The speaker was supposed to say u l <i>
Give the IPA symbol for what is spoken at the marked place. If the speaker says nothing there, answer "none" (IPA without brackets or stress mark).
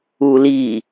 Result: i